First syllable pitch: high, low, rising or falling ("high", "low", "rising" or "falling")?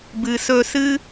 low